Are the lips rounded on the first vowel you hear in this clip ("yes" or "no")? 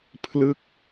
no